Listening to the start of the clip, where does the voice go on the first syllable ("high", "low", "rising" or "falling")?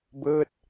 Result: falling